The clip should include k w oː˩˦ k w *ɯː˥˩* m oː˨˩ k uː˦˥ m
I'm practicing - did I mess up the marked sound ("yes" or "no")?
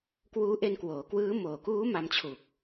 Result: yes